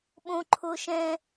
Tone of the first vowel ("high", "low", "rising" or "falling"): high